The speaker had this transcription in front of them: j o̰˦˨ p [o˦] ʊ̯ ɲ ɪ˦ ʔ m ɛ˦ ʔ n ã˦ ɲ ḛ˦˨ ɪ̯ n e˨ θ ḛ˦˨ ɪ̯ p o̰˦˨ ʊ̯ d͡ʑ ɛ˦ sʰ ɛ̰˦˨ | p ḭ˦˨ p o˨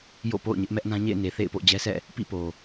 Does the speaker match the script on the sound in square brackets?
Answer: no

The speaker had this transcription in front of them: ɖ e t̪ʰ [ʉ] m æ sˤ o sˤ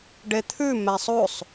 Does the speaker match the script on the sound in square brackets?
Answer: yes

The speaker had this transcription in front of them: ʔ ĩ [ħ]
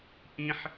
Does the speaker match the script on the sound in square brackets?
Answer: yes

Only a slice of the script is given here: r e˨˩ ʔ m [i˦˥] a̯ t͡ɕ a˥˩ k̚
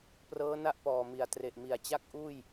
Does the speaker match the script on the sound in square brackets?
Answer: no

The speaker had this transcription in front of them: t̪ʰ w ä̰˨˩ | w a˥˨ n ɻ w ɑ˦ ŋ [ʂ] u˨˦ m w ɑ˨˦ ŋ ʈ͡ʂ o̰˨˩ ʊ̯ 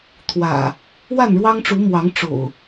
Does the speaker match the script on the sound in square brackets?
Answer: no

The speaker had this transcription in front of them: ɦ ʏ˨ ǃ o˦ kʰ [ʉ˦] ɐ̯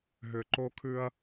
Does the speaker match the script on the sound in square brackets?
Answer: yes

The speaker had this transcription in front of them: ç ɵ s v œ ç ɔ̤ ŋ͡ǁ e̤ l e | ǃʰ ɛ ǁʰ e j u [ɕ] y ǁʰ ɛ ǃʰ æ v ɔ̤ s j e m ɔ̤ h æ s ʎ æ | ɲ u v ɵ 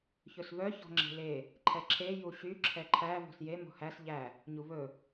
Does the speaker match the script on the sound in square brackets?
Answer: yes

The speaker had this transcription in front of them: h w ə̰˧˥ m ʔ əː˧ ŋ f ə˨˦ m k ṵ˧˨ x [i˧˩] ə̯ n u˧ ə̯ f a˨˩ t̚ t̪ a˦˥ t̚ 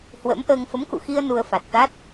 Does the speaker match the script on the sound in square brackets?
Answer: no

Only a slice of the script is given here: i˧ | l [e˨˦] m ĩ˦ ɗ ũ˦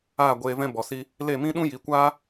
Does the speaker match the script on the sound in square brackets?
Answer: no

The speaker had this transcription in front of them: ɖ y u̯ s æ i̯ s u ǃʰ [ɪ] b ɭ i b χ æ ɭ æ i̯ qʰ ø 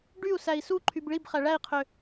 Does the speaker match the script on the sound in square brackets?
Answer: no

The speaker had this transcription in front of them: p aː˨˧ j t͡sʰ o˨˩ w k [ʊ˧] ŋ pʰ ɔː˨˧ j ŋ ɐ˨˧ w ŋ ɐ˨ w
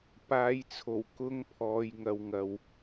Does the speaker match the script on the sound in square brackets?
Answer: no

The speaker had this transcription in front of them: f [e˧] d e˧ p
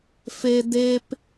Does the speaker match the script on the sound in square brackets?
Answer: yes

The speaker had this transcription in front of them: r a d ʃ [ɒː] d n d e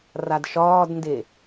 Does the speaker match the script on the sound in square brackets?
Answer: yes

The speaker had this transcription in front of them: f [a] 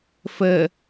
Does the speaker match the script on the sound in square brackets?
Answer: no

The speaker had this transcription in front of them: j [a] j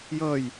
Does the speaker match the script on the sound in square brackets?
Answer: no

